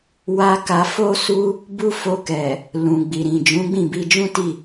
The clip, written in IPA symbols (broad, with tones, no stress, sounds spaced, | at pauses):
w a˧ k a˧ f o˦ s u˦ | b u˦ f o˧ k ɛ˨ | l ũ˨ ɡ͡b i˨ ɾ ĩ˨ d͡ʒ ũ˨˦ ɡ͡b ĩ˦˨ b i˧ d͡ʒ ũ˦ t i˦˨